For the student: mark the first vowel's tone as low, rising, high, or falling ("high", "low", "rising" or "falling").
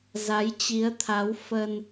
rising